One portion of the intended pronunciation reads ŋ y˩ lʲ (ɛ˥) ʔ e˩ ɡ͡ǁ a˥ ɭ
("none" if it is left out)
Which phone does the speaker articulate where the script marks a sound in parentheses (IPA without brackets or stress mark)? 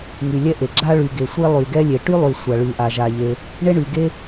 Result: ɛ˥